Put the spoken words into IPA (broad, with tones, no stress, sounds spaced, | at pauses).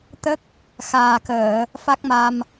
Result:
t̪ ə˦˥ k̚ | x aː˨˩ k əː˨˩˨ | f a˦˥ k̚ m a˧ m